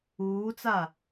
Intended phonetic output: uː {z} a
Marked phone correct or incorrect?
incorrect